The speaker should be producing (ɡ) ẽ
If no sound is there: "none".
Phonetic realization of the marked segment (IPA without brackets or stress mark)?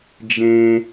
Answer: d͡ʒ